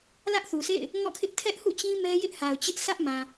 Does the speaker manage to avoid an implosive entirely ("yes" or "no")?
yes